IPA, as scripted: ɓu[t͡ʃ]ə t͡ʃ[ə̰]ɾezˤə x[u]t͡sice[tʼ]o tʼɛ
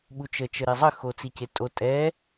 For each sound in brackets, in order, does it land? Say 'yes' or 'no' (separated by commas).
yes, no, no, yes